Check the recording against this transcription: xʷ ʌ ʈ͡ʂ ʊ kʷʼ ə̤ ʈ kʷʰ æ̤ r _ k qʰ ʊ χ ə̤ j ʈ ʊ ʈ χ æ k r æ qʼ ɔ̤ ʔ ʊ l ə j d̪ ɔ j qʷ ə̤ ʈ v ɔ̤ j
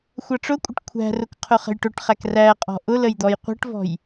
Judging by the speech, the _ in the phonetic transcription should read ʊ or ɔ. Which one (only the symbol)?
ʊ